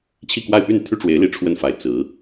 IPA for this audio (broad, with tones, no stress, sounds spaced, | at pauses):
t͡ɕʰ i˥˧ k w a˥˧ ɪ̯ p y˥˩ n t̪ʰ y˥ ʈ͡ʂ w e˧˥ ɪ̯ l i˧˥ ʈ͡ʂʰ w ə˥˩ n f a˧˥ ɪ̯ t͡s ɹ̩˧˥